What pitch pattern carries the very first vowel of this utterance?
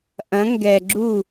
rising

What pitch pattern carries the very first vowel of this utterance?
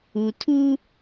low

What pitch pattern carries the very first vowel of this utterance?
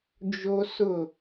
high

